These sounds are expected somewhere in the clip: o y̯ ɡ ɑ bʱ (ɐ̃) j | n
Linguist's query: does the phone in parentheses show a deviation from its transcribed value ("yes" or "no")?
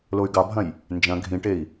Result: no